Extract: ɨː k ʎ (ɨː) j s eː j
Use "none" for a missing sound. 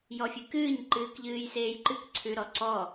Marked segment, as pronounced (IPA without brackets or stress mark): ɨː